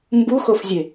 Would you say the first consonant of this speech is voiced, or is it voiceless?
voiced